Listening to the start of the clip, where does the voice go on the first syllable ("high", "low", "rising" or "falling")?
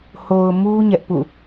low